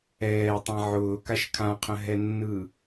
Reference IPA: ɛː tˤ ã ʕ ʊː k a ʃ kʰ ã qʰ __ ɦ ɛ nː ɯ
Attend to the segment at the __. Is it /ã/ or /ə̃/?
ə̃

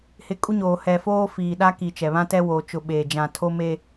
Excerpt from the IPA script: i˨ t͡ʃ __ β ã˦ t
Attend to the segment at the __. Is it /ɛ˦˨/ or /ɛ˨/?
ɛ˨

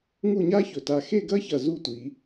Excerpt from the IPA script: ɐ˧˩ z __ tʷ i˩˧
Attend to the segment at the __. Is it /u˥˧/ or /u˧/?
u˥˧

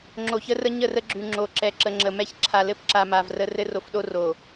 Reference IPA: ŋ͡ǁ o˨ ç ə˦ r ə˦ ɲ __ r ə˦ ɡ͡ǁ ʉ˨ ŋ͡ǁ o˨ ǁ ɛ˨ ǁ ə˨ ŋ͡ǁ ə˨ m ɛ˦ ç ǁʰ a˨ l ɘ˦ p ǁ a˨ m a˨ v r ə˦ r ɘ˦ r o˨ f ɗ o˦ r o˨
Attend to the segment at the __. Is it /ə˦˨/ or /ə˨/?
ə˦˨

